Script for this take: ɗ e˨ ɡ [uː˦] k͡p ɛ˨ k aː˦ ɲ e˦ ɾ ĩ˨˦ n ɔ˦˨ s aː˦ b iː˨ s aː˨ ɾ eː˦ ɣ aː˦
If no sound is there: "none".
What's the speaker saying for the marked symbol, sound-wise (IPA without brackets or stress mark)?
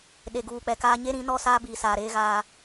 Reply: uː˨